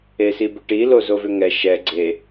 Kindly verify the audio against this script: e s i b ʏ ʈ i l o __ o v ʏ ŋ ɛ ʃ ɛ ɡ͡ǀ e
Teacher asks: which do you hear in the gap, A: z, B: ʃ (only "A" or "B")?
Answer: A